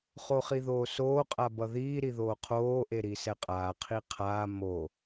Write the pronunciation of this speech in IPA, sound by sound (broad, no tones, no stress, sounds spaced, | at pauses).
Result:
χ o χ i ð oː s oː qʼ a b ʌ ð iː ɾ i ð oː qʰ oː ʔ e ɾ i s ɛ qʼ aː qʰ i qʰ aː m o